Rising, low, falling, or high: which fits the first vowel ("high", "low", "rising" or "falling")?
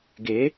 rising